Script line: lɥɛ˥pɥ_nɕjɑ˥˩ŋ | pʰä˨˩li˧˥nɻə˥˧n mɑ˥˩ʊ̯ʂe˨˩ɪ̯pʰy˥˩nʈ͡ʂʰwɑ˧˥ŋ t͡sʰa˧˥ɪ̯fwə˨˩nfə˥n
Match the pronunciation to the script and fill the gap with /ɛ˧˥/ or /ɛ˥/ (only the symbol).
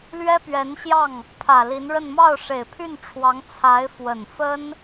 ɛ˧˥